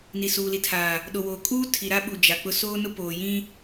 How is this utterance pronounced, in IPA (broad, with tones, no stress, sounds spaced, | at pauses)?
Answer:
n i˨ s uː˨ l i˨ tʰ aː˨ | ɗ o˨ w oː˨ kʼ uː˦ tʰ i˨ ɾ a˦ ɓ u˨ d͡ʒ a˨ k͡p ʊ˦ s oː˦ n ʊ˦ p oː˨ j ĩ˦